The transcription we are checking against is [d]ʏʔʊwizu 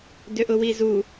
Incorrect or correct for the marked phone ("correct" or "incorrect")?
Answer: correct